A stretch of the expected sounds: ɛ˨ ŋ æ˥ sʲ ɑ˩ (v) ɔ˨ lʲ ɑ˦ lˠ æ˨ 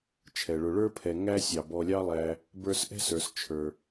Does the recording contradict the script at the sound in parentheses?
yes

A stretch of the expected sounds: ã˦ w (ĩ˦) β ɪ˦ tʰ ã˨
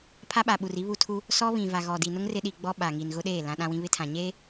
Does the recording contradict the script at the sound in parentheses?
no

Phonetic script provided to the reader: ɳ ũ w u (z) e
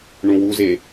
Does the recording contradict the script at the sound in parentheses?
no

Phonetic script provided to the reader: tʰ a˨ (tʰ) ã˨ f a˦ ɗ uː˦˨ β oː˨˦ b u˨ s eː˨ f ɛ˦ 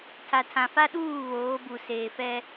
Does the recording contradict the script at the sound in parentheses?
no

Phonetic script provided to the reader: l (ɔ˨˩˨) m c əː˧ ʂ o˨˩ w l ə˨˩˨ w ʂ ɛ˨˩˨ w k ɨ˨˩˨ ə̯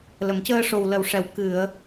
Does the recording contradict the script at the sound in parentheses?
yes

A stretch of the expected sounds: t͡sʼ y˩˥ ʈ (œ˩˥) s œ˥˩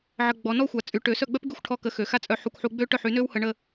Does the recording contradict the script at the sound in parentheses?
yes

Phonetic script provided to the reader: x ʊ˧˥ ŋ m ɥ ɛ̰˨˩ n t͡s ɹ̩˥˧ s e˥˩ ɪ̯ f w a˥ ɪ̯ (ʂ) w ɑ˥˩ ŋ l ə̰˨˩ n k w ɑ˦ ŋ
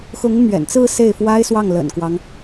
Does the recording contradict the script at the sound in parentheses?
yes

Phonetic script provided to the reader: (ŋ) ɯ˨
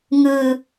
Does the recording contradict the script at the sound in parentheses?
no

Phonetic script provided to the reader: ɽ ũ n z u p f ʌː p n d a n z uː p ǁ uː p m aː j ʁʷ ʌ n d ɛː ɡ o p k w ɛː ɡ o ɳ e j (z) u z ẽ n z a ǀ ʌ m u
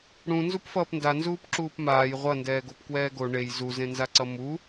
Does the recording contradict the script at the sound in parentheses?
no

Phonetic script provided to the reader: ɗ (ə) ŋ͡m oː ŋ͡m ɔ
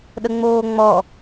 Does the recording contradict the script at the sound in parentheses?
no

